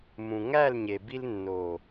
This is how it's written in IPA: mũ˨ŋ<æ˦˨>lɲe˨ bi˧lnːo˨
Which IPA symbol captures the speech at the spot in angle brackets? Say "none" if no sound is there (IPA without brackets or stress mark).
æ˦˨